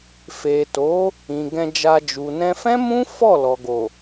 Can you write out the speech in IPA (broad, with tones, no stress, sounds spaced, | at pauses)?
f e˨ t o˨˦ | ĩ˨ ɡ ɛ̃˧ d͡ʒ a˧ d͡ʒ u˨ n ɛ̃˧ f ɛ̃˦ m ũ˦ f ɔ˦˨ l ɔ˨ ɡ o˨